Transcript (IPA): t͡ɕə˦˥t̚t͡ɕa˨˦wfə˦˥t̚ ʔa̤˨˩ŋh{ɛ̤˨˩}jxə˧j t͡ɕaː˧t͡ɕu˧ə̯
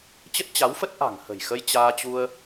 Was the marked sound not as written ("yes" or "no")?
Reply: yes